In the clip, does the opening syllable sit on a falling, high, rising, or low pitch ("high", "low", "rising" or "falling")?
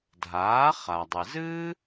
rising